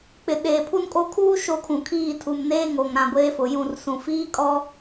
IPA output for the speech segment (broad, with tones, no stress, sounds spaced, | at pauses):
k͡p ɪ˨ ɗ eː˨ pʰ u˦ n kʼ o˦˨ kʰ uː˦ ʃ o˦ kʰ ũ˨ kʰ iː˦˨ tʰ u˨ m n eː˦ ŋ o˨ ŋ ɾ ã˨ ɡʷ eː˦ f ʊ˨ j ũ˦˨ r s ũ˨ f iː˦ kʼ ɔ˦